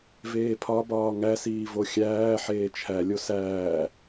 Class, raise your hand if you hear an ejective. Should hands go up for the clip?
no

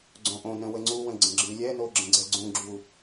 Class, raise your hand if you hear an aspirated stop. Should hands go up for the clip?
no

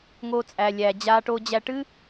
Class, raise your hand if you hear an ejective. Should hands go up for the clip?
yes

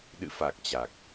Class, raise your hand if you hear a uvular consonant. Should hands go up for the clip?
no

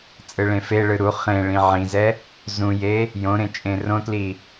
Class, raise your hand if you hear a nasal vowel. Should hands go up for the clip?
yes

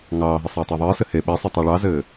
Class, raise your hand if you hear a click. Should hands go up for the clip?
no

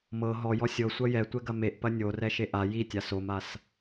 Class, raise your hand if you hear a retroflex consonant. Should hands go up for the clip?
no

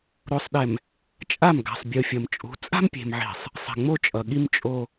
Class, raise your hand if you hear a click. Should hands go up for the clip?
no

